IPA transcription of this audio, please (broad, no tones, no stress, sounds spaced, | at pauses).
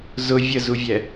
z ʊ vʲ ə z u vʲ ɛ